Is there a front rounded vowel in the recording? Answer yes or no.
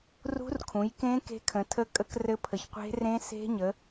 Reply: no